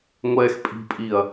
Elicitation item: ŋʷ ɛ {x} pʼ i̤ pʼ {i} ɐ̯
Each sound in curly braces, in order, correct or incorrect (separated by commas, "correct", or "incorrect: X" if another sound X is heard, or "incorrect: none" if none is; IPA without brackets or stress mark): correct, correct